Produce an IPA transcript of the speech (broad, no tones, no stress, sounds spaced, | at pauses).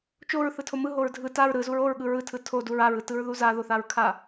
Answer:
t͡ʃ o ɹ θ ɯ tʰ o m ɯ ɦ o ɹ dʱ ɯ t a ɹ ɾ ɯ z u ɹ o ɹ ɠ ɯ ɹ ɯ tʰ ɯ tʰ o d u ɹ a ɹ ɯ t ɯ ɹ ð u z a ð o θ a ɹ kʰ a